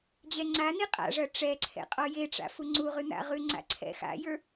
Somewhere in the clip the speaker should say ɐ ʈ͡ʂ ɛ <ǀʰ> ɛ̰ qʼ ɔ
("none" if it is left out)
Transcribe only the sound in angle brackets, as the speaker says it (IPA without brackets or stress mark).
ǀʰ